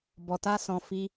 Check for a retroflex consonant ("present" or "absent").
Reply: absent